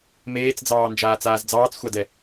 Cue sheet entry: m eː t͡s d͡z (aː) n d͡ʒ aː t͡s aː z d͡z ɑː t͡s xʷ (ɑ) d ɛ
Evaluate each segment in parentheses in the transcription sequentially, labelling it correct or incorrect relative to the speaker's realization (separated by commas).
incorrect, correct